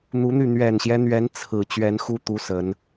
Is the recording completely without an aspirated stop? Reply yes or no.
no